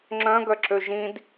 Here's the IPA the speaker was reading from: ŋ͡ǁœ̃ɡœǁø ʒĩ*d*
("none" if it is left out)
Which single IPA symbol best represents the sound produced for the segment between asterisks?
d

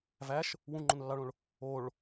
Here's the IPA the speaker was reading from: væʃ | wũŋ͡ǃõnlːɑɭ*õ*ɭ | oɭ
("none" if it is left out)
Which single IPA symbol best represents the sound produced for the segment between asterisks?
õ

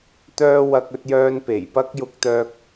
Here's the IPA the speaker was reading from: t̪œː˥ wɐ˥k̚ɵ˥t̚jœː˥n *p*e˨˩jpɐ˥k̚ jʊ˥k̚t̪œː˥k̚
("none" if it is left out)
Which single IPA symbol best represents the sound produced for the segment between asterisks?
p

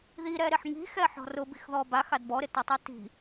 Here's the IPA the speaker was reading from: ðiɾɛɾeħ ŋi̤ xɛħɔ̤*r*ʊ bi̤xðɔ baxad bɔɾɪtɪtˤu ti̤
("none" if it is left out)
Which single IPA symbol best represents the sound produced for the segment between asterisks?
r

